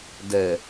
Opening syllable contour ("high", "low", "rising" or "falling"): low